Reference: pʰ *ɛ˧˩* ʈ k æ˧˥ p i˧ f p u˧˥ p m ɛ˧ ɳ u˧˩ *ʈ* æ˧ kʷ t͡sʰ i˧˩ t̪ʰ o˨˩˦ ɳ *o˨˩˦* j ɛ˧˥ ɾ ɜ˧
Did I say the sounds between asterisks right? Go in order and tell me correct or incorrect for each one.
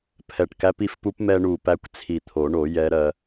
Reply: correct, incorrect: p, correct

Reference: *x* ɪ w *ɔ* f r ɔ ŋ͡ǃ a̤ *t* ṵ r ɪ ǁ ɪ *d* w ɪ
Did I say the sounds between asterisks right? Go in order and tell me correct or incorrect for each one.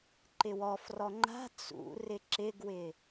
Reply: incorrect: ǃ, correct, incorrect: t͡s, incorrect: ɡ

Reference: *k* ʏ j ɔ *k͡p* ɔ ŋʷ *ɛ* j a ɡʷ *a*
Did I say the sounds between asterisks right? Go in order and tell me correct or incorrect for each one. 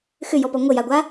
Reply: incorrect: x, incorrect: p, incorrect: ə, correct

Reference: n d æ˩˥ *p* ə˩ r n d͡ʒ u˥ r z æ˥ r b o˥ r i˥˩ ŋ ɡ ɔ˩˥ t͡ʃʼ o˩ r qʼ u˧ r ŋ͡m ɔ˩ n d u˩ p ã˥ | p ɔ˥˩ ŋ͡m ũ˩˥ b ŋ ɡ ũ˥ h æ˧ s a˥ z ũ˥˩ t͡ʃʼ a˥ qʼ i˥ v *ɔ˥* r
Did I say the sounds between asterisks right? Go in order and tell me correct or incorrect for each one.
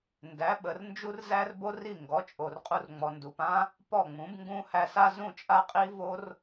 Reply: incorrect: ɓ, incorrect: o˥

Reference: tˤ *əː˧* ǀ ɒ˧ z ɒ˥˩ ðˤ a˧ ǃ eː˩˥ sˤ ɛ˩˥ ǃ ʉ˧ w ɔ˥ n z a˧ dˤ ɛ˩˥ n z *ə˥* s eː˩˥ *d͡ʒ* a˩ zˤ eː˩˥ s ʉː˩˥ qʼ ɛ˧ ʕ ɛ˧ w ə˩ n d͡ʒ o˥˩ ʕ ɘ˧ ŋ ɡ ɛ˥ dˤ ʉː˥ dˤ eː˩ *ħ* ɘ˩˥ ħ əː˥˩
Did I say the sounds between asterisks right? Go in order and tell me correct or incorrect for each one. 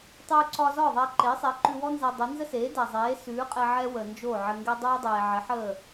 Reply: incorrect: ʉː˧, correct, incorrect: d, incorrect: ʕ

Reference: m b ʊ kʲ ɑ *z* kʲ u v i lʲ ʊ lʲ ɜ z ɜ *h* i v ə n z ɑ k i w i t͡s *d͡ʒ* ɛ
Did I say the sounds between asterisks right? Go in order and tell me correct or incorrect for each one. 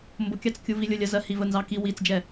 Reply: incorrect: t͡s, correct, correct

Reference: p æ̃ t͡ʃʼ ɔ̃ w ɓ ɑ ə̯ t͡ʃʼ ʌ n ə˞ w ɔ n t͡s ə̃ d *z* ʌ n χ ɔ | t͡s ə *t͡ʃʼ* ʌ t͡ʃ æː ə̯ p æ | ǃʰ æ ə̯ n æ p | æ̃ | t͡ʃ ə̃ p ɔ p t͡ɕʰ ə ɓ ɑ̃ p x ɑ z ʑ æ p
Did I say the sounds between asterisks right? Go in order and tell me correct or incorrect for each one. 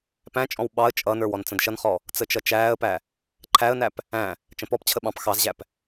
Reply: incorrect: ʃ, incorrect: t͡ʃ

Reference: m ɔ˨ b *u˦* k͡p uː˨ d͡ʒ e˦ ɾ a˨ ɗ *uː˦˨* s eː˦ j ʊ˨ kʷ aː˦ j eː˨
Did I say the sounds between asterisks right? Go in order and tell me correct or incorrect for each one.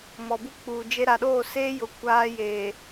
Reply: correct, incorrect: oː˦˨

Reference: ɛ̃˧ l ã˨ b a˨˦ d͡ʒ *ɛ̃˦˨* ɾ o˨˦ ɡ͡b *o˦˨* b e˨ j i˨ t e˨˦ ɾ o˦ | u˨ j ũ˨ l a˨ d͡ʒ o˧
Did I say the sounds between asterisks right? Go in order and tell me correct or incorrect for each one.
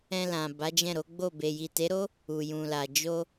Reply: correct, correct

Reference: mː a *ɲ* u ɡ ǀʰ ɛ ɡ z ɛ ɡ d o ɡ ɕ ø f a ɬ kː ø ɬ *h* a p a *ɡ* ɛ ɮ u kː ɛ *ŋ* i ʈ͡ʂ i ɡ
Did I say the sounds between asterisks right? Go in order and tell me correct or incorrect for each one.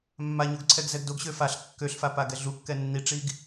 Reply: correct, incorrect: f, correct, incorrect: nː

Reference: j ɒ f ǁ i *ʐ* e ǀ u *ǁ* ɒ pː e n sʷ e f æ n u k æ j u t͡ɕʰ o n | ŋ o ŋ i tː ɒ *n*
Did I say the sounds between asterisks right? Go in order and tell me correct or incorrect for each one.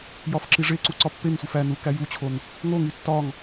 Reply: correct, incorrect: ǀ, incorrect: ŋ

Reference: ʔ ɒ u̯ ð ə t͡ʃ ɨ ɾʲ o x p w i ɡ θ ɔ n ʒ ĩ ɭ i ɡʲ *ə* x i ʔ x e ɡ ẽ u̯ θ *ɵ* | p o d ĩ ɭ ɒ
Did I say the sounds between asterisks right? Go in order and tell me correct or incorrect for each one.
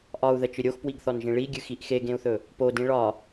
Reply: incorrect: ɨ, correct

